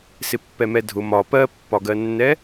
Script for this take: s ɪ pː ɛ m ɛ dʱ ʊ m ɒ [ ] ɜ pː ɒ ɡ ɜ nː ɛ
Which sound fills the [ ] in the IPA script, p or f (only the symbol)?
p